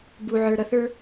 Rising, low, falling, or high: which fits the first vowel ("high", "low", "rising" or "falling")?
low